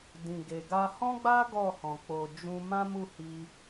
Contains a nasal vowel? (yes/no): yes